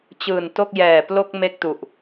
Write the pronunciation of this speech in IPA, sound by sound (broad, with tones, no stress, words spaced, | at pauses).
t͡ɕɯː˨˩nto˥˩k̚jɛː˨˩plo˥˩k̚ me˥˩k̚tu˨˩ʔ